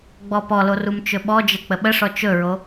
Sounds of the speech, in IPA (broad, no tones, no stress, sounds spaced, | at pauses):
ɡ͡b ɔ p ɔ l o r u m t͡ʃ ɵ ɓ ɔ d͡ʒ ə k͡p ə ɓ ə ʂ ɔ t͡ʃ ɵ ɹ o